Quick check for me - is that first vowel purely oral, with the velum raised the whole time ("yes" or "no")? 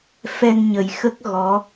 yes